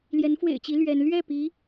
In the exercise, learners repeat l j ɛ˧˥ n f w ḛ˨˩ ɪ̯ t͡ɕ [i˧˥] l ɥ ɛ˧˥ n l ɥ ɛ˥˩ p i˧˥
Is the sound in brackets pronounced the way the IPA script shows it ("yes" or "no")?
yes